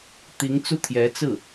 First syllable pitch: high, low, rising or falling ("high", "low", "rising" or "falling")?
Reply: rising